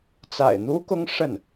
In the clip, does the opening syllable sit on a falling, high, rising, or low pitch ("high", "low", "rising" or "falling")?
low